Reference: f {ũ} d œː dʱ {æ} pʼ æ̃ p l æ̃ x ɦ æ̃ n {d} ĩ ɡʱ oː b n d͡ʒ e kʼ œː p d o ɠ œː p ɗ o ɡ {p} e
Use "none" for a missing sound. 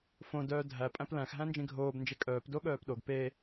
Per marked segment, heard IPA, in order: õ, æ, d͡ʒ, p

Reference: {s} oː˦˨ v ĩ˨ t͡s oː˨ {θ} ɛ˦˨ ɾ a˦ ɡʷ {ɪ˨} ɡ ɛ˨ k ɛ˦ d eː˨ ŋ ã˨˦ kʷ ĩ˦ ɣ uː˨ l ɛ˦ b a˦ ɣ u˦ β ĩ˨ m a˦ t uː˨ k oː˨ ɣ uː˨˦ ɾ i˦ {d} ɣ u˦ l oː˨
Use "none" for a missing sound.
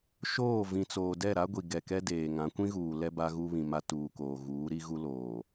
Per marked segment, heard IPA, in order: ʃ, d, i˨, none

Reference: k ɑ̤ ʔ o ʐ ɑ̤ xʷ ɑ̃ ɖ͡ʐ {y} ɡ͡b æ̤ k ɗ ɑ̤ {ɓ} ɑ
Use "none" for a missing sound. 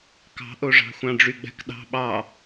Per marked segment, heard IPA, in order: y, ɓ

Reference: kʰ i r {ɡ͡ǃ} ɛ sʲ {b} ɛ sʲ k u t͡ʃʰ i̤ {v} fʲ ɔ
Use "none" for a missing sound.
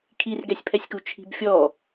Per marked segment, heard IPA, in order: ɡ, pʰ, b

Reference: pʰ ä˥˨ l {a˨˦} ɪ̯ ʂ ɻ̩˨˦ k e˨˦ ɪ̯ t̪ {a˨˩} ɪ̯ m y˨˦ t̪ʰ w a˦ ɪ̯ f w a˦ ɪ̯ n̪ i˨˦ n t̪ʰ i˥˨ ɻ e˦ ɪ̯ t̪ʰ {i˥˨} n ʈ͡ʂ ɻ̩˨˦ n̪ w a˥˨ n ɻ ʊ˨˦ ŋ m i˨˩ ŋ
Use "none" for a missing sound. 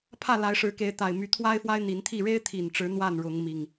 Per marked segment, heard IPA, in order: a˨˦, a˨˩, i˨˩

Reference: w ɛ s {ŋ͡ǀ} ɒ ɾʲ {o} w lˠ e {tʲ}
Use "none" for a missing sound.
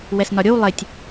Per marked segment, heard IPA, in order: n, o, tʲ

